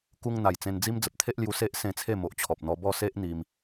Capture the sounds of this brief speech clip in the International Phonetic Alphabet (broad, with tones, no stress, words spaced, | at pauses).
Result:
ku˧ŋn̪a˨˩j t͡sẽ˧nd͡zi˦m d͡zə˨p̚t̪ʰe˦ʔlju˧ se˦ʔ sẽ˧t͡sʰe˥˧mo˨ʔ t͡ɕʰɔ˨p̚n̪ɔ˧ bɔ˥˧ se˦ʔ n̪i˧m